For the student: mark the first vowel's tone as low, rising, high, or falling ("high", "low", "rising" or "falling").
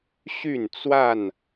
falling